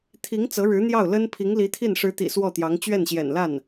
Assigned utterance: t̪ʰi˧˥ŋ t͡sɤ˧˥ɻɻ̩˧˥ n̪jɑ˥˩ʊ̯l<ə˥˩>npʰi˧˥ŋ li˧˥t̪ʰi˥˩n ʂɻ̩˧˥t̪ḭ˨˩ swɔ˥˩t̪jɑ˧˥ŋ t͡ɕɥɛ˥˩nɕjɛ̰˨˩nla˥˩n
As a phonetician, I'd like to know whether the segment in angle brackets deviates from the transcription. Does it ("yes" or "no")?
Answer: yes